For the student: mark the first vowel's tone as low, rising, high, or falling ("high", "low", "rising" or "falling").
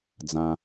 low